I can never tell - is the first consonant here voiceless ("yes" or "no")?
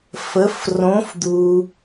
yes